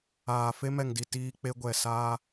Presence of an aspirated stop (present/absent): absent